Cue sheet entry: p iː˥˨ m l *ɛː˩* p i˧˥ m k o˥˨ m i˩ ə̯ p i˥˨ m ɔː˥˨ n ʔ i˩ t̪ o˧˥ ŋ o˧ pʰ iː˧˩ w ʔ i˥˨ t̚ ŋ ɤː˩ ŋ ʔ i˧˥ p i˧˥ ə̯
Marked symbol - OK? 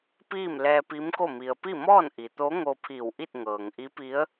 no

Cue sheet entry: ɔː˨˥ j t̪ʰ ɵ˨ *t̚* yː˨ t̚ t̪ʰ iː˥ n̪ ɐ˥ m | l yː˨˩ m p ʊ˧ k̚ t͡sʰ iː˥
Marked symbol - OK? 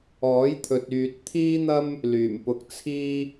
yes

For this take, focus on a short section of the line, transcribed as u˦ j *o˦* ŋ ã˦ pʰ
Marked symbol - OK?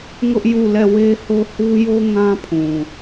yes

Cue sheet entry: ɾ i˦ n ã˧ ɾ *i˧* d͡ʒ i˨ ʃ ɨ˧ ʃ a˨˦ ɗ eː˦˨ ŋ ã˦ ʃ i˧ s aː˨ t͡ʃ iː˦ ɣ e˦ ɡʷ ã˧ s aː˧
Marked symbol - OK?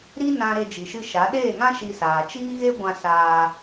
no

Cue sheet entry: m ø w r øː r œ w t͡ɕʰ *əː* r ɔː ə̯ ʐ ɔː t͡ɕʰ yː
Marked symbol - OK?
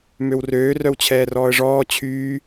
no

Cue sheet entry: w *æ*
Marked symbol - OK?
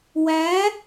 yes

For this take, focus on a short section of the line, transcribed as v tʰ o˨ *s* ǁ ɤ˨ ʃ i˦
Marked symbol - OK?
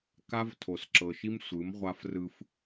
yes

